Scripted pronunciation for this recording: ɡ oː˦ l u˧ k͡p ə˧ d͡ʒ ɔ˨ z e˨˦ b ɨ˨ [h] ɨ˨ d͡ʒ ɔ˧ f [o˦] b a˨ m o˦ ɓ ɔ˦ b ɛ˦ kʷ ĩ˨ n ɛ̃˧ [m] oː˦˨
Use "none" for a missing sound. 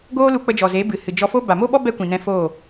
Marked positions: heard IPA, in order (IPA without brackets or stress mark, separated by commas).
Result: h, o˦, f